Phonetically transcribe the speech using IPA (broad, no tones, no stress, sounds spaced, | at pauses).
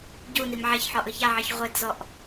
ɟ u n i m ʕ ɛ ç ħ ɔ ʔ ɯ ç a ʕ i ç ʁʷ e d z ɔ ʔ